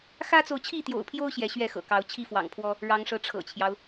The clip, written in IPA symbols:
x ä˦ t͡s o˨ ʊ̯ t͡ɕʰ i˥˨ t̪ j o̰˨˩ ʊ̯ pʰ j o˦ ʊ̯ ɕ j ɛ˨˦ ɕ ɥ ɛ˥˨ x ɤ̰˨˩ k ɑ˨˦ ʊ̯ t͡ɕʰ i˥˨ f w ɑ̰˨˩ ŋ pʰ w ɔ˦ | ɻ ɑ˨˦ ŋ ʂ ɤ˨˦ ʈ͡ʂʰ ɤ̰˨˩ t͡ɕʰ j ɑ˦ ʊ̯

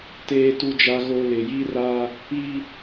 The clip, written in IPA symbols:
t eː˦ t u˦ d͡ʒ a˦ ɣ o˦ l ɪ˨ j i˦ r a˦ | i˦

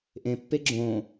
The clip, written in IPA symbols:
ʔ ẽ pː e ɡ͡ǁ õ

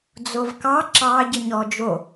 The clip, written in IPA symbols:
d͡z o v k ɑ ǁ ɑ ɟ ə ɲ ɔ d͡ʒ o

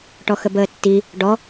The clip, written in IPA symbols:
ʈ ɔ x ə b əː tː i | ɖ ɔ

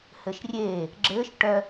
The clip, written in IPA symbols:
h ɘ ʃ rʲ eː | ɡ͡ǁ ɘː ʃ ʈ œ

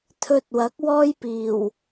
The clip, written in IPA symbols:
t̪ʰ ɵ˧ t̚ w ɐ˨˥ k̚ w ɔː˥ j p iː˨˩ w

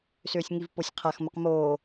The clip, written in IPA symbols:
s ʏː sʲ ŋ i v p o sʲ qʰ a x m ə q m oː

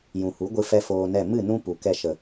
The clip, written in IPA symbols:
j ũ˨ h u˨˦ ɡʷ ɨ˦ f ɛ˦ f oː˧ n ɛ˦˨ m ɨ˦˨ n ũ˦ p u˨ k ɛ˧ ʃ ə˨

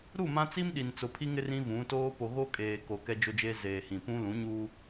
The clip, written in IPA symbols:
ɾ u˦˨ m ã˦ t͡s i˦ m ɗ i˨ n t͡s ʊ˨ pʰ i˦ ŋ ɪ˦ r ĩ˦ v ũ˨˦ t oː˦ p o˨ ɣ o˦ kʼ eː˨ k o˨ k ɛ˦ d͡ʒ o˦ d͡ʒ e˦ z eː˨ h ĩ˨ p ũ˦ l ũ˨˦ ɲ uː˦

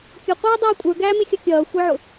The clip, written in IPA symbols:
kʲ ʌ qʷ iː dˤ æː kʷʼ ə˞ ɡ æː m ɪ xʲ ʌ kʲ ʌː xʷ i ʕ ʊ

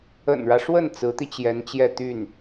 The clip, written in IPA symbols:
ə̰˨˩ n ɻ ä˦ ʂ w ə˥˩ n t͡s ɹ̩˧˥ t̪ i˧ t͡ɕ j ɛ˧˥ n t͡ɕ j ɛ˥˧ t̪ y˥˩ n

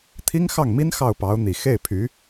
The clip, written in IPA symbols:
t̪ʰ i˥ ŋ x ɑ˥˩ ŋ m i˥ n x ɑ˥˩ ʊ̯ p ɑ˧˥ ʊ̯ n̪ i˨˩ x e˥˩ ɪ̯ pʰ y˧˥

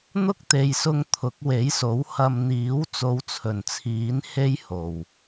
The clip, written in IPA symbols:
n̪ ʊ˥ k̚ t̪ e˨ j s ʊ˧ ŋ t̪ʰ ʊ˨˥ k̚ w e˨˥ j s o˨˥ w h ɐ˧ m n̪ iː˨˥ w t͡s o˨˧ w t͡sʰ ɵ˨˩ n t͡sʰ iː˨˥ n h e˥ j h o˨˩ w

